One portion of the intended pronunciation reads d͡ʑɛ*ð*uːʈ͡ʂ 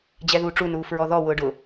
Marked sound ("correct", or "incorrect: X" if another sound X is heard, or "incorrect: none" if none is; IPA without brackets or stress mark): correct